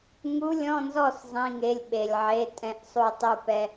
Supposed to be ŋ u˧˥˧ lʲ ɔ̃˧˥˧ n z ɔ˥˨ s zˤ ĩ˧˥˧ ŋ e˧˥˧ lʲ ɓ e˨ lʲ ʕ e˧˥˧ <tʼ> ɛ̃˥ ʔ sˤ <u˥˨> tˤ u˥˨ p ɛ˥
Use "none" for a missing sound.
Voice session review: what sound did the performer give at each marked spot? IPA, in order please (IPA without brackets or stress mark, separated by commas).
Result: tʼ, u˥˨